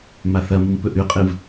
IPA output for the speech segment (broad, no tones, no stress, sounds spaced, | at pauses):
m a θ ɐ m ɨ m p ɵ ʔ ʉ qʼ ɨ v